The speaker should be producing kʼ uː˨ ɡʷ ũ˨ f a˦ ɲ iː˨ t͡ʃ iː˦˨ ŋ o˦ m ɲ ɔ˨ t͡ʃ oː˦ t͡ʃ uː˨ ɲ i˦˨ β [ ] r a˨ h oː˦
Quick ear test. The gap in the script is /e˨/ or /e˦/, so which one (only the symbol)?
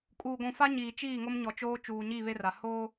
e˦